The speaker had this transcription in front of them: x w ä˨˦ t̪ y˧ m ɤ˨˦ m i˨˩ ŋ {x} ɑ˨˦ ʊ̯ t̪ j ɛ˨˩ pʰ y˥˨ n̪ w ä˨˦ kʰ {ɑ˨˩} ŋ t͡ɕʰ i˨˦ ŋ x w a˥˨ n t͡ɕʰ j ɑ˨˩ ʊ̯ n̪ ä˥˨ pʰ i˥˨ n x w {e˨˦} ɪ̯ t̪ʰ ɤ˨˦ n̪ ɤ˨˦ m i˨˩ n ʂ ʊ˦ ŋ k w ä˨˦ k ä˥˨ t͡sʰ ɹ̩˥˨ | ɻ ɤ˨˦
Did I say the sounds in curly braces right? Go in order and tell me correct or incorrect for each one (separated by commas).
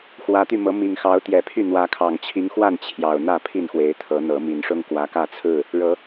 correct, correct, correct